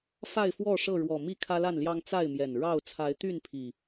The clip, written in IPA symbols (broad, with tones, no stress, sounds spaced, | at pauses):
f a˥˨ ɪ̯ f w ɔ˥˨ ʂ ɤ˥˨ ɻ w ɔ˨˩ m i˥˨ kʰ ä˦ l a˥˨ n l j ɑ˦ ŋ t͡s a˥˨ ɪ̯ m j ɛ˨˩ n ɻ ɑ˥˨ ʊ̯ t͡sʰ a˨˦ ɪ̯ t̪ y˥˨ n pʰ i˨˩